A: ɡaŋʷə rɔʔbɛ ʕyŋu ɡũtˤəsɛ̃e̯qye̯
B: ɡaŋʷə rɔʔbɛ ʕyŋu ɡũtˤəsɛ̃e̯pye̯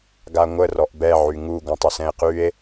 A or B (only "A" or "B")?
A